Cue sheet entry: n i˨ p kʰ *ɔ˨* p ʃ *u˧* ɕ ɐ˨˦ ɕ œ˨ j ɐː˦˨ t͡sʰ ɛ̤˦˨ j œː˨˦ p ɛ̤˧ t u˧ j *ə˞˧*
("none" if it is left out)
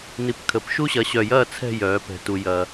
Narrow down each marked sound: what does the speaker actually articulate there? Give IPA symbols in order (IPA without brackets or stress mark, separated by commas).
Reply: ə˨, u˦, ɐ˧